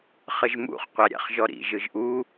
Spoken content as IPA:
χəʒmṵχ qʷaɾʲa̰χʒɔɾḭ ʒɯʒʔu

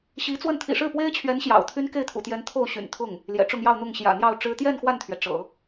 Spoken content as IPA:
ɕi˧˥t͡swə˥˩n t̪ʰḭ˨˩ʂɻ̩˥˩pwe˥ɪ̯t͡ɕʰɥɛ˧˥n ɕjɑ̰˨˩ʊ̯t̪ʰy˥n ke˥˩ɪ̯t̪ʰṵ˨˩t̪jɛ˧˥n t̪ʰo˥˩ʊ̯ɕy̰˨˩nt̪ʰʊ˥˩ŋ | ljɛ̰˨˩ʈ͡ʂʊ˥˧ŋjɑ˥˧ʊ̯n̪ʊ˥˩ŋ ɕjä̰˨˩n̪jɑ˥˩ʊ̯ʈ͡ʂɻ̩˥ t̪jɛ˥˧n xwa˥˩nt̪ʰɥɛ˩ ʈ͡ʂɤ̰˨˩˦

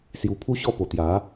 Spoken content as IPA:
sju˧pʰu˦ɕɔ˥˧po˨˩ t̪ja˨˦

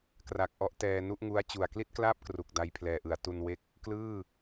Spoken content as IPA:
kra˨˩k̚ʔɔ˦˥ʔ tɛː˧nu˥˩ʔŋu˦˥a̯ t͡ɕu˨˩a̯kli˥˩t̚klaː˥˩p̚kru˨˩k̚ da˧jpʰlɛː˨˩ʔɯ˩˦a̯ tu˧n we˥˩k̚ | klɯː˥˩

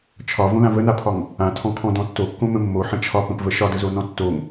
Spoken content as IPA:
t͡ʃʰɒvõðã vənapʰɒŋ | ãtʰɔ̃kʰɔ̃dɔ̃ tːokːõmə̃ mːoħə̃ t͡ʃʰɒpə̃pvə ʃɒdəzonɔ̃ tːoŋ

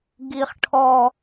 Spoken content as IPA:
ɡi˦χʈʰɔ˦

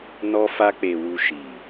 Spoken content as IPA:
nɔ˧fa˧k͡pe˨wu˨ ʃi˨

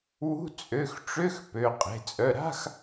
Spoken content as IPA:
wṳ˧˥˧ t͡sʼø˩˧˩xʈ͡ʂø˧˥˧x pø˩˧˩qʼe̤˩˧˩ t͡sʼœ˩˧˩ ɾa̤˧˥˧x

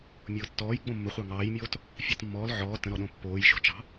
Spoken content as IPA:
mʲʊːtːɔːj ɡ͡bõmːəχʷɑ ŋɑːjmʲoːt | fʲɑtmːɔːl ʕɔː tə̃ɾɔɗõ pːoːj ʃo̤t͡ʃɑ̤

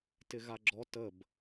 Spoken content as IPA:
tɪɣaɡ͡ǁɔ təb

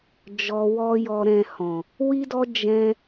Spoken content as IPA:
d͡ʒɔ˧wɔ˦jɔ˧ɾɛ̃˧ hɔ̃˨ | wi˦dɔ˦ d͡ʒɛ̃˧

